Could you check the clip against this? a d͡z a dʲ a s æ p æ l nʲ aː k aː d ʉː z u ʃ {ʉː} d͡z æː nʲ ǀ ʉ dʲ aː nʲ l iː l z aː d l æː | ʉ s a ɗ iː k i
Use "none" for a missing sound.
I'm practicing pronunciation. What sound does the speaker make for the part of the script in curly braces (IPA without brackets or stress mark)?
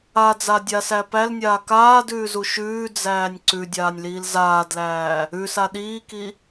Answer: ʉː